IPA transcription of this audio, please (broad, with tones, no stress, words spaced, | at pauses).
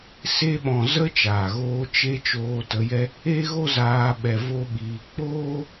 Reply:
se˧ɓɔ̃˨ zə˦ t͡ʃaː˨ɣoː˧ t͡ʃe˧ t͡ʃoː˧tə˨˦jɛ˦ | e˦ɣo˦zaː˧ ɓɛ˧vo˦ɓiː˧ k͡poː˦